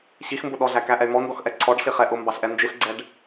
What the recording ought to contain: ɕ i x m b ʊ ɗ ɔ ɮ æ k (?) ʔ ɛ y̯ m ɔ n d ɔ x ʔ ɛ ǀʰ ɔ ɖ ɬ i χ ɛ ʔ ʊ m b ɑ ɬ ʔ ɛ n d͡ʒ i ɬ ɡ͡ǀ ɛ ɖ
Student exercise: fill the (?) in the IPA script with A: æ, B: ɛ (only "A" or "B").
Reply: A